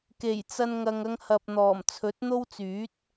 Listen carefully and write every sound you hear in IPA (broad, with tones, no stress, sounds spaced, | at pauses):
k e˨˩ j t͡s ɐ˧ n ŋ ɐ˨ ŋ ɐ˧ ŋ h ɐ˨ p̚ n̪ ɔː˨˩ m t͡sʰ ɵ˨˥ t̚ n̪ o˥ w t͡s yː˨˥ t̚